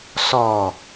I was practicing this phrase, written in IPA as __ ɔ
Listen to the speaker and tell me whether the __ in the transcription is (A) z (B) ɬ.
B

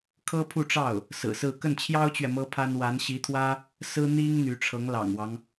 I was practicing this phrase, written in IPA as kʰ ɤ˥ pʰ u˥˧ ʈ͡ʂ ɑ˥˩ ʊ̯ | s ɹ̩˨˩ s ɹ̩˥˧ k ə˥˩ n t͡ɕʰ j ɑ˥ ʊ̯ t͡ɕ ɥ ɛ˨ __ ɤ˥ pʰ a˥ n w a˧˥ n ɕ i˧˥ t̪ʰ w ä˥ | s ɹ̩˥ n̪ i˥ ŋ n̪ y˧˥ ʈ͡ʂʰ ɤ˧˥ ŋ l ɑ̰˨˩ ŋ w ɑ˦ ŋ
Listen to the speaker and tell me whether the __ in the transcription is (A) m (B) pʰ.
A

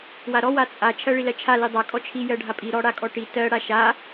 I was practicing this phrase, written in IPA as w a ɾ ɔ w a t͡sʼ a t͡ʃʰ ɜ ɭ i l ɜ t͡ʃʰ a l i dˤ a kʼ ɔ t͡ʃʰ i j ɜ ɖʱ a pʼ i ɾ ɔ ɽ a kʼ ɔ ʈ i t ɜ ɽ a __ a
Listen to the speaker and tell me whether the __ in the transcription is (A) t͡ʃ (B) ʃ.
B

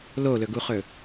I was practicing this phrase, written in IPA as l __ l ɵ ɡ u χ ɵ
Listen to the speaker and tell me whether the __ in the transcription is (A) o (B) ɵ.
A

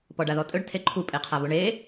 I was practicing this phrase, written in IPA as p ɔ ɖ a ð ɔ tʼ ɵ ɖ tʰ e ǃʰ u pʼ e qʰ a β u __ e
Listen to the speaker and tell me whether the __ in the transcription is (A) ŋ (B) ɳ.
B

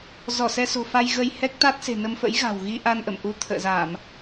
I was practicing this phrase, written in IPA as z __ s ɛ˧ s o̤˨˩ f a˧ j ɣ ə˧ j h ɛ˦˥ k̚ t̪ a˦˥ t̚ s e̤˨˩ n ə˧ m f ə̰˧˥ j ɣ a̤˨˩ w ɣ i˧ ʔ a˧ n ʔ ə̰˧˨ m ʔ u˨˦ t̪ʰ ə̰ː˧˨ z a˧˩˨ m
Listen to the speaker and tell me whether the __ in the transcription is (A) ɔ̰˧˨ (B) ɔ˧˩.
B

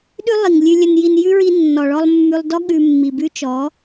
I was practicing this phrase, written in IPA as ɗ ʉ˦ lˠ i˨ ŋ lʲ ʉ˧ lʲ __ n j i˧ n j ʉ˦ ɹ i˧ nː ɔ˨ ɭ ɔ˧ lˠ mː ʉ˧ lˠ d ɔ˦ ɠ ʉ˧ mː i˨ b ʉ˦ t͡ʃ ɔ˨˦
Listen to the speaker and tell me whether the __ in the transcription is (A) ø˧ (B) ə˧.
B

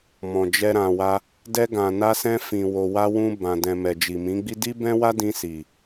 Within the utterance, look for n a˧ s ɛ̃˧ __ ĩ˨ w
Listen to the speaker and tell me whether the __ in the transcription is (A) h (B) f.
B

